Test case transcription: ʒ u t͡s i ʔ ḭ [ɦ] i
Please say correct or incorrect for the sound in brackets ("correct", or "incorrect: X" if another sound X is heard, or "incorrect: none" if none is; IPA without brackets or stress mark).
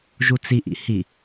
incorrect: h